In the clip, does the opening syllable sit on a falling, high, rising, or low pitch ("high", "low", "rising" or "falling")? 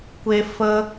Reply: high